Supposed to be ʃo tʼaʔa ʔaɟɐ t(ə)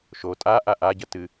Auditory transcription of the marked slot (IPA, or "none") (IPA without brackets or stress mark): ɨ